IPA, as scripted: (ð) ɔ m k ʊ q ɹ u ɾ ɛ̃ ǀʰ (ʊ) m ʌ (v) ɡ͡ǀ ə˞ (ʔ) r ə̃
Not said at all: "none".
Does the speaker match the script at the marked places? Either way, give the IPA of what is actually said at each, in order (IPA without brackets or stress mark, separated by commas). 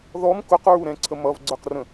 ð, ə, v, q